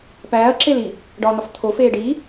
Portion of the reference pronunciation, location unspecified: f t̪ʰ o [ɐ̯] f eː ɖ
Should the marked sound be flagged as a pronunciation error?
yes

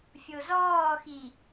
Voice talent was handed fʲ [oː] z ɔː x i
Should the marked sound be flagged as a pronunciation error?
yes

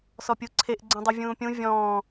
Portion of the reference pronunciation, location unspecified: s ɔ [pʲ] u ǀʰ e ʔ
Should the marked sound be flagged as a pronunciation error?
no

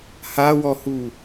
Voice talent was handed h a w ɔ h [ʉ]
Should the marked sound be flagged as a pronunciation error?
yes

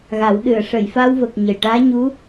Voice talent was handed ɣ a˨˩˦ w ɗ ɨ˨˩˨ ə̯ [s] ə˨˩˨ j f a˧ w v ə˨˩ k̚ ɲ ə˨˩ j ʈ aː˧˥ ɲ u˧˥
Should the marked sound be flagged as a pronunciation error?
yes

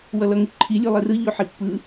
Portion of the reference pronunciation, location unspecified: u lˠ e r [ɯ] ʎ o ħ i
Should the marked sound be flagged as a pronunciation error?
no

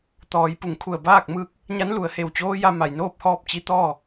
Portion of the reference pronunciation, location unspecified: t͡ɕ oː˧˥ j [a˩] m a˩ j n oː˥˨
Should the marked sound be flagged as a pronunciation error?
yes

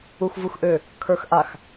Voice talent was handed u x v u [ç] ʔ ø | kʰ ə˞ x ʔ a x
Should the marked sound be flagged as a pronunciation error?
yes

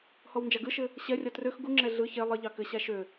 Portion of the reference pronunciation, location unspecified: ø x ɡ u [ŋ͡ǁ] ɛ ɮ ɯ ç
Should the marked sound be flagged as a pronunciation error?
no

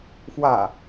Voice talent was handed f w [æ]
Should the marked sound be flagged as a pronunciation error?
yes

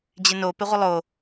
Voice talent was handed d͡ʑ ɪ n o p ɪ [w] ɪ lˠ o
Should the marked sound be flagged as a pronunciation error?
yes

